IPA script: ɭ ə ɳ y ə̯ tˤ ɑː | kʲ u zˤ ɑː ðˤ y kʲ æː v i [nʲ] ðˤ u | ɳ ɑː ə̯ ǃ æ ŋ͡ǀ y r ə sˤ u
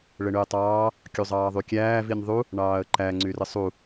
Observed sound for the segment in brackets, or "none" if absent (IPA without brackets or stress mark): nʲ